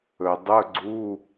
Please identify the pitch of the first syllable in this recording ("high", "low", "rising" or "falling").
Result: low